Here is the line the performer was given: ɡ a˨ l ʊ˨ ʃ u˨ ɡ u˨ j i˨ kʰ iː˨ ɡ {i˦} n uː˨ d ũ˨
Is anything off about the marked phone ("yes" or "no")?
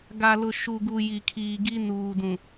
no